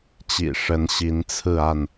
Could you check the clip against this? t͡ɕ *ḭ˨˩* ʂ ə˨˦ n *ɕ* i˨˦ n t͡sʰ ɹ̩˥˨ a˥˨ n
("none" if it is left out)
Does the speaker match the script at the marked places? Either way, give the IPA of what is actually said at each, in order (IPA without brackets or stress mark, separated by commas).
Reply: ḭ˨˩, ɕ